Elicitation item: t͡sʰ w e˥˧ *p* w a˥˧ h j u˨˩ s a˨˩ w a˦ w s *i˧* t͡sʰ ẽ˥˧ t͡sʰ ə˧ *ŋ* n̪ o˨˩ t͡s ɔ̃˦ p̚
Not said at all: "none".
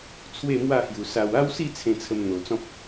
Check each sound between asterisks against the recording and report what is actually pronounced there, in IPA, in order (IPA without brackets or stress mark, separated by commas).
m, i˥˧, m